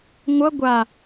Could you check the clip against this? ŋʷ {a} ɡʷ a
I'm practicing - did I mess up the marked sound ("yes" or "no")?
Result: yes